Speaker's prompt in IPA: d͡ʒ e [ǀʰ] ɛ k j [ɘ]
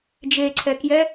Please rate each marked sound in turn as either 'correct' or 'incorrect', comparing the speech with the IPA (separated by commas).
correct, incorrect